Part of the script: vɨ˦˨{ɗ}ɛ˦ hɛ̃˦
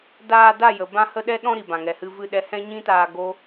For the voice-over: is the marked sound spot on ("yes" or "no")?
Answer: yes